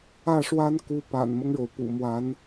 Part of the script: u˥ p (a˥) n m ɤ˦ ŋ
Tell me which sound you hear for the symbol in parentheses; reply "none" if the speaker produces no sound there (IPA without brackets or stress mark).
a̰˨˩